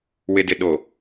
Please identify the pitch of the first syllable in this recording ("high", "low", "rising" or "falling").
low